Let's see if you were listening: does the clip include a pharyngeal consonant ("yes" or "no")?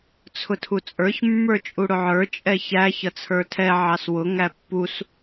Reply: yes